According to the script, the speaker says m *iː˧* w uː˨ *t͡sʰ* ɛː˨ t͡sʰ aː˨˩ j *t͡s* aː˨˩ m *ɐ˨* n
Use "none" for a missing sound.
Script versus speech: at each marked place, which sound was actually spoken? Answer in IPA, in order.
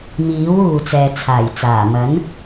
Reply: iː˨˥, t͡s, t͡s, ɐ˨˥

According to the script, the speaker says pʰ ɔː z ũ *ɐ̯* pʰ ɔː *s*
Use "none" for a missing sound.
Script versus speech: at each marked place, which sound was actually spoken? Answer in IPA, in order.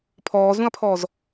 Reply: ɐ̯, z

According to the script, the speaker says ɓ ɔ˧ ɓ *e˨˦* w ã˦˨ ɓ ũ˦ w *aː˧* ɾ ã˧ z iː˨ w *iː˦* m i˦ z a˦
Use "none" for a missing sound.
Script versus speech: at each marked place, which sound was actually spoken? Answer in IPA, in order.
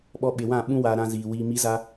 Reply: e˨, aː˧, iː˧

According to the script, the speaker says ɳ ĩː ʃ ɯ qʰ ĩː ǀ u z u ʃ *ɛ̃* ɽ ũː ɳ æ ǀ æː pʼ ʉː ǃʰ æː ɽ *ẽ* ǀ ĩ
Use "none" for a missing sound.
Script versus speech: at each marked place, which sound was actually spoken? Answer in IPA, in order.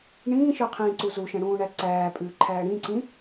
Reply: ɛ̃, ĩ

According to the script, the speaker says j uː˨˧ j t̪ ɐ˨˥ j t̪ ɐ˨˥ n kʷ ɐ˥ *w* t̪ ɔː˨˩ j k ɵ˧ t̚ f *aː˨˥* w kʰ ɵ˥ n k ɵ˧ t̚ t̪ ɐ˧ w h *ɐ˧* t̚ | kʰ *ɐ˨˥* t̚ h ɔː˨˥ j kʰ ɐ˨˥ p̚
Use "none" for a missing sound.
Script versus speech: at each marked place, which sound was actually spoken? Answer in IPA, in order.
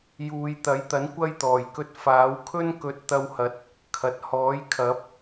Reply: j, aː˨˥, ɐ˨˥, ɐ˨

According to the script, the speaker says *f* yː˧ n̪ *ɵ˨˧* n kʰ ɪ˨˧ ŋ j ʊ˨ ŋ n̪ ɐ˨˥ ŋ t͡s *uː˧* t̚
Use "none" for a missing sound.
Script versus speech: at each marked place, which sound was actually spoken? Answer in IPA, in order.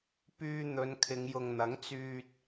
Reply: p, ɵ˨˧, yː˧

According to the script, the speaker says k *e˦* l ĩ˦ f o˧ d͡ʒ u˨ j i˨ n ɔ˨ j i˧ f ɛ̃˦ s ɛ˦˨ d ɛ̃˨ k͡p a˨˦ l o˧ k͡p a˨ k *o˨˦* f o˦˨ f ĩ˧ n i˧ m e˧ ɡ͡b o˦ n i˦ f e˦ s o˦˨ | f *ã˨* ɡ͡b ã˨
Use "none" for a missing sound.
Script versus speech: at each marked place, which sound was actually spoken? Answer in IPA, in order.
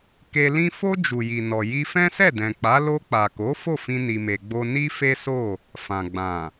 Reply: e˧, o˨˦, ã˨

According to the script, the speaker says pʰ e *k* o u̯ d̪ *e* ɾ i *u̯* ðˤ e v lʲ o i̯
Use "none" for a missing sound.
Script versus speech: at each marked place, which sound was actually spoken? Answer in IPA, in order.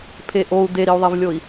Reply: ʔ, e, u̯

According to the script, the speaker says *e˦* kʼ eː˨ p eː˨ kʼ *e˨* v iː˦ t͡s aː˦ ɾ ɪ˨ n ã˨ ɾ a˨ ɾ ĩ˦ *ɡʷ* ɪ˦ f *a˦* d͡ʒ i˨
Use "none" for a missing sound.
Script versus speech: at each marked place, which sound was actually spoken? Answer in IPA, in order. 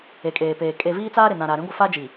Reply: e˨, e˨, ɡʷ, a˦

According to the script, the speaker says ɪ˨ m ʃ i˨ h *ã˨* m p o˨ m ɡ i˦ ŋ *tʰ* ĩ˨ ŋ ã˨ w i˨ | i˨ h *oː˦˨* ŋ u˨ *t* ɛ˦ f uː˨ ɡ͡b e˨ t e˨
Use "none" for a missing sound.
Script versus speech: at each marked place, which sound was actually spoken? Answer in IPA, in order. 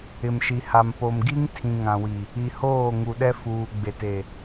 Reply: a˨, tʰ, oː˦˨, ɗ

